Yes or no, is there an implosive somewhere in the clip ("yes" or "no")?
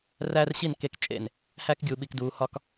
yes